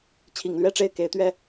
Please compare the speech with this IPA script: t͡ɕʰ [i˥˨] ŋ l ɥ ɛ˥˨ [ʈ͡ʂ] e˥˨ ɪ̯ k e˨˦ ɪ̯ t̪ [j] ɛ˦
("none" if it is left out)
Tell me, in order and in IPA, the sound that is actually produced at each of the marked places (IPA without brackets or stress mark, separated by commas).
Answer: i˨˩, ʈ͡ʂ, ɥ